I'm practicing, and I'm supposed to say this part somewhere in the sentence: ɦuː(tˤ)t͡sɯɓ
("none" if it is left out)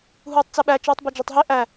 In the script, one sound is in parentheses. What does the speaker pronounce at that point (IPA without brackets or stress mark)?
tˤ